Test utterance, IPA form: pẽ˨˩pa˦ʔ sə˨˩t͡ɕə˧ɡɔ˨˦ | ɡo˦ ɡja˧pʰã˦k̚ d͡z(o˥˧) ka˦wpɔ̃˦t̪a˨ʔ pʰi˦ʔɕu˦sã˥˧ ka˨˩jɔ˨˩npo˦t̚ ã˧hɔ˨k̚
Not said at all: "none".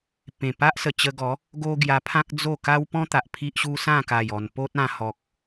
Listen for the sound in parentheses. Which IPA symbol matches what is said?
o˥˧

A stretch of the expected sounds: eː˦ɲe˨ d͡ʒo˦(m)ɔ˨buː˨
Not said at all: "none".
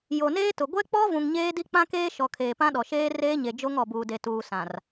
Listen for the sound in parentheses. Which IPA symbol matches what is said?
ŋ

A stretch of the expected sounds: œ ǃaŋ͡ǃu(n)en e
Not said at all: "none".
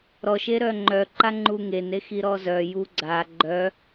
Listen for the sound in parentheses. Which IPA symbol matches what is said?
ŋ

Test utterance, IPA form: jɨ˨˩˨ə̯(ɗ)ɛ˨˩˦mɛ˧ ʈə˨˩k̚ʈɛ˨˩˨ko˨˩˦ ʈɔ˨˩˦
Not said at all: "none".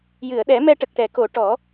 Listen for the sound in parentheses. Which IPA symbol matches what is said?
ɗ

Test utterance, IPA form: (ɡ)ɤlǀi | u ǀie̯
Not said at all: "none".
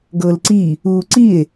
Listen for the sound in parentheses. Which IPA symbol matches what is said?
ɡ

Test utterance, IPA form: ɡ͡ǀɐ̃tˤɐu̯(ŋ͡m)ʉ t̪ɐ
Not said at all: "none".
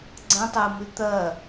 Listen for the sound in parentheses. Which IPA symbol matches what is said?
m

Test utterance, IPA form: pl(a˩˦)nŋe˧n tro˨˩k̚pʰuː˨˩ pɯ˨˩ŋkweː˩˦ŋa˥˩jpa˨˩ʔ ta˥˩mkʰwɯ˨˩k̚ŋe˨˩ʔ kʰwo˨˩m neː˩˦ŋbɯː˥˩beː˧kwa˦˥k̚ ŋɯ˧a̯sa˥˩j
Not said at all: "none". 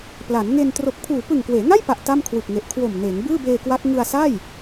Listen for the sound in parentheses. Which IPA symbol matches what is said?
a˩˦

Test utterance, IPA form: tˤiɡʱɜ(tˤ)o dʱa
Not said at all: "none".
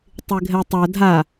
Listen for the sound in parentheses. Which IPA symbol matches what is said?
tˤ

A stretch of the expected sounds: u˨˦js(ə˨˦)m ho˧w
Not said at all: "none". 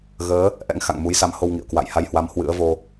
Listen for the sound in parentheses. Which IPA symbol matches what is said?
a˨˦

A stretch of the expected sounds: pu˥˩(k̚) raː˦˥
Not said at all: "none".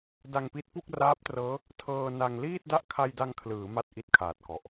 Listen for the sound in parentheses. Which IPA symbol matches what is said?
k̚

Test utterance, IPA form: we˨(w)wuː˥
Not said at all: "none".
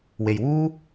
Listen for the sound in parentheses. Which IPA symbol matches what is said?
j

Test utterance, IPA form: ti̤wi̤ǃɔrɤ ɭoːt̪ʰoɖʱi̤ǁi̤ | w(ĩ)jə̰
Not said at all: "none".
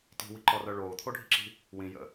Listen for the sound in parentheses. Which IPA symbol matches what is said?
ĩ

